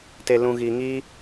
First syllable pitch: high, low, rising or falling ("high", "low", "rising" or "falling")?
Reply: low